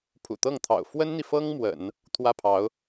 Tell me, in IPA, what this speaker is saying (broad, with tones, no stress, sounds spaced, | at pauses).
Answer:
pʰ ṵ˨˩ t̪ ɤ˥˩ ŋ t̪ʰ ɑ̰˨˩ ʊ̯ f w ə˥ n n̪ i˨ f ɤ˥ ŋ m w ə̰˨˩˦ n | t̪ʰ w ä˥˩ pʰ ɑ˧˥ ʊ̯